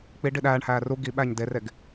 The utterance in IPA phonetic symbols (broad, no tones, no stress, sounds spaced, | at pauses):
k͡p i ɖ i ɗ æː ɳ h æː r u ɡ i ɓ æ ɲ d e r e ɡ